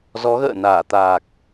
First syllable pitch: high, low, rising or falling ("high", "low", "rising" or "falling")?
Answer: rising